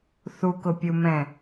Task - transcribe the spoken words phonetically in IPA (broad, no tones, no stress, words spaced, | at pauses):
θukʊpʲumɛ̃